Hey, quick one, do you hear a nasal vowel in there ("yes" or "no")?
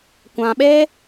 yes